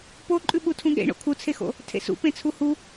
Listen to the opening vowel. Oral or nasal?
oral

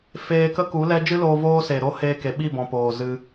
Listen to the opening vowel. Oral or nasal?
oral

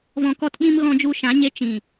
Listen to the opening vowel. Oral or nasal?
nasal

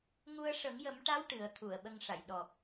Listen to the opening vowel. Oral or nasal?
oral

